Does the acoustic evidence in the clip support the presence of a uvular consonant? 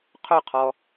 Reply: yes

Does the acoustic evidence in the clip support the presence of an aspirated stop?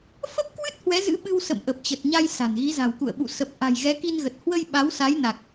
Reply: no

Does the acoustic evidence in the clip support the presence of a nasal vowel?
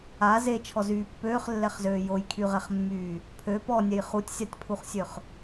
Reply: no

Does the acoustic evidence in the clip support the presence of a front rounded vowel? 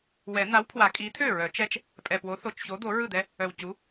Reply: yes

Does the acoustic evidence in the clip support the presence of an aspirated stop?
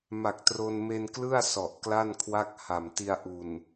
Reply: yes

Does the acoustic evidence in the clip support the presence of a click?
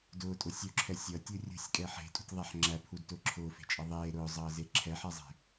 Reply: yes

